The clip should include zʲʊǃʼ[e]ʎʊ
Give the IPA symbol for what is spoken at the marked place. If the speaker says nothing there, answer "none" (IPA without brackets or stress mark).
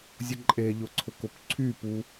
e